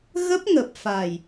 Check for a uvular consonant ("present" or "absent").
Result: absent